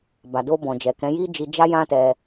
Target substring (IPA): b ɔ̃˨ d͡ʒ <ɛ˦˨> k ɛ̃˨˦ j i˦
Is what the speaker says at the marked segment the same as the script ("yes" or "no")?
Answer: no